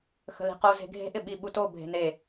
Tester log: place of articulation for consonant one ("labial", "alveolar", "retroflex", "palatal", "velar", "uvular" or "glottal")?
velar